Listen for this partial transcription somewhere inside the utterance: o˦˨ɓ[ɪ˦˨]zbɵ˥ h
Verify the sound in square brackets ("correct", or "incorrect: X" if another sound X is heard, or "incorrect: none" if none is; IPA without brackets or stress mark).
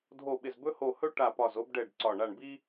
correct